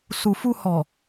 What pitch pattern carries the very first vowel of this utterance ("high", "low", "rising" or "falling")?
low